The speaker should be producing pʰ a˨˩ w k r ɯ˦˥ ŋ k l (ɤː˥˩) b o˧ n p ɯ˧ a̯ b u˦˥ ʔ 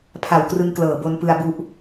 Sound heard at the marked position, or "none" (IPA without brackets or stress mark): ɤː˨˩